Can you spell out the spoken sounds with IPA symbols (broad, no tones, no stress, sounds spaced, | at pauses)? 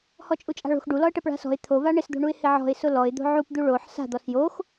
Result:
h ɔ t͡ʃʼ u t͡ʃʼ a̤ ɭ o̤ x ɖ u l ɔ ə̯ ʈ ɛ p ɭ a̤ s ɔ̤ ɪ̯ t̪ʰ o v a ɳ ɪ s d̪ o̤ ɳ u ɪ̯ h ɪ ʕ ɔ̤ ɪ̯ s ʊ l ɔ ɪ̯ d̪ o̤ ʕ u p d̪ u ɭ o ħ s a̤ d̪ ɔ s j o x